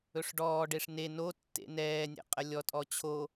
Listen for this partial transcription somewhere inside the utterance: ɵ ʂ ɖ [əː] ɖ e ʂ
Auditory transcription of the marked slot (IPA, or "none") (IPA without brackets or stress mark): ɔː